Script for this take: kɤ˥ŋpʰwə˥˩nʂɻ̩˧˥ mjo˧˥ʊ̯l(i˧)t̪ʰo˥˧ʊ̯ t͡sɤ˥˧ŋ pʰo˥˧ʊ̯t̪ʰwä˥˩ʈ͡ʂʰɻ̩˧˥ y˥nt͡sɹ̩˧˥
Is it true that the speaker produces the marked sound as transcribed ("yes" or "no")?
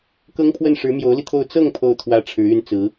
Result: yes